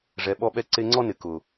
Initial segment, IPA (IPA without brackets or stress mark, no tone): ʐ